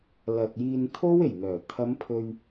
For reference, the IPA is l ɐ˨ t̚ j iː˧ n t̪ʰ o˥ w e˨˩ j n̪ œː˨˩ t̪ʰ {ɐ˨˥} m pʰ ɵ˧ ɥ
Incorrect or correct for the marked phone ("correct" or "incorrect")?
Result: incorrect